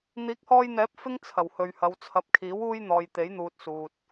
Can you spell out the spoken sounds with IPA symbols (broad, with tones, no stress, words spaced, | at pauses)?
n̪iː˨˥k̚hɔː˧jn̪ɛː˨˥p̚ fɪ˥ŋ t͡sʰɐ˨˩whɵ˨ɥhɐ˨˧w t͡sʰɐ˨p̚kʰiː˨˥wuː˧j n̪ɔː˨j t̪e˨˥jn̪uː˨t̚ suː˨t̚